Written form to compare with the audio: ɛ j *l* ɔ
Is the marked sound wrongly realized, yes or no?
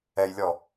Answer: yes